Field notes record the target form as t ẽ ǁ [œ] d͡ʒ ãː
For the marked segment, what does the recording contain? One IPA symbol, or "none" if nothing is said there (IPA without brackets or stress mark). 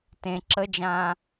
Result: ə